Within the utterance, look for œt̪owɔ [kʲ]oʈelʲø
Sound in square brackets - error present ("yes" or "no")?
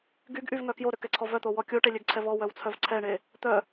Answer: no